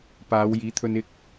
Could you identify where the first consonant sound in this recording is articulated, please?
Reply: labial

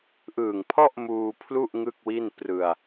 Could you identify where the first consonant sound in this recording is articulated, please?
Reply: glottal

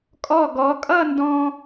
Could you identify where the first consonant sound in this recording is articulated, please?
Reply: velar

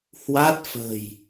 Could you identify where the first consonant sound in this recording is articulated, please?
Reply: glottal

